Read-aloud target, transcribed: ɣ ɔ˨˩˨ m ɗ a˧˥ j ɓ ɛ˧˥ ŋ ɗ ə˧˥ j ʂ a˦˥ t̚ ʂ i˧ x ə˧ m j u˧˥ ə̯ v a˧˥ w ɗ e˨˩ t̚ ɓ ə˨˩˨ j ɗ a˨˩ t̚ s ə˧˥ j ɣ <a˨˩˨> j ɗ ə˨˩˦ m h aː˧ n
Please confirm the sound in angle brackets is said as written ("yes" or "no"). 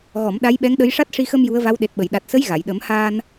yes